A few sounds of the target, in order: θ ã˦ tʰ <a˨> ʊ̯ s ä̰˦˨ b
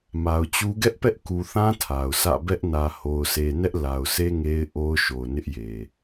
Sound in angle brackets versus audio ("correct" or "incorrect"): correct